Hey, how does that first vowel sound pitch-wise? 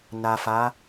low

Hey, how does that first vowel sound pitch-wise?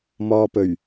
low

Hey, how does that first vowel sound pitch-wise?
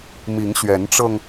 rising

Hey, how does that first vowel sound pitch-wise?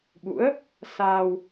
rising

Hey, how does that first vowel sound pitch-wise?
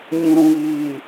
low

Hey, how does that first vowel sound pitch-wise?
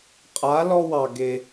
rising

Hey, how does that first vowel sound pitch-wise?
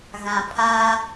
low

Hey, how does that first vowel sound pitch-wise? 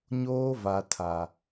high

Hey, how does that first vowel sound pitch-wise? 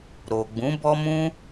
low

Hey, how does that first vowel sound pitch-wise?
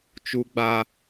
high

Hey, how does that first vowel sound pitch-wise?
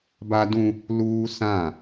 high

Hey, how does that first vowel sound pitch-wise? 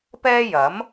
high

